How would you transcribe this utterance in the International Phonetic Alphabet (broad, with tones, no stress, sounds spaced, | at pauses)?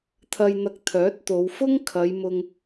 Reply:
t̪ʰ ɐ˧ j n̪ ɐ˧ k̚ t̪ʰ œː˨˥ t̚ t̪ o˨˧ w f ʊ˥ ŋ kʰ ɐ˨˧ j m ʊ˧ ŋ